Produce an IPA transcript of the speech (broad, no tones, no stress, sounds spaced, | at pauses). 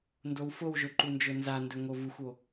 n d o w f o w ʒ ɵ ǃ u n d͡ʒ ɵ n z a n d ɵ ŋ o v u xʷ o